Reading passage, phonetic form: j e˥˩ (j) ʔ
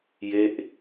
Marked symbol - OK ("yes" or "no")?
no